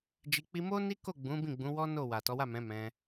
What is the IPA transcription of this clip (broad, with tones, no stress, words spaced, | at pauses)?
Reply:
d͡ʒi˧k͡pi˦ mo˦ ni˦ko˦˨ ɡ͡bũ˨˦ bĩ˦˨ɡ͡bũ˨˦wɔ˦ no˦˨ wa˨tɔ˨˦wa˦˨mɛ̃˨˦ mɛ̃˧